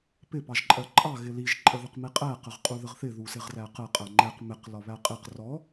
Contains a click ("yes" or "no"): yes